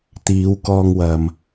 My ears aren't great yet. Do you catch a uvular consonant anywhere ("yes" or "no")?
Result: no